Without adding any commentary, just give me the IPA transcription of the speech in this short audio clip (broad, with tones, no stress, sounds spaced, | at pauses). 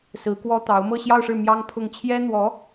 s ɹ̩˧˥ k w ɔ˥ t̪ ɑ˧˥ ʊ̯ m ɤ˥˧ ɕ j ɑ˥˧ ʊ̯ ʂ ɻ̩˥˩ m j ɑ˥ ŋ pʰ ʊ˥˩ ŋ t͡ɕʰ j ɛ˥ n̪ w ɔ˧˥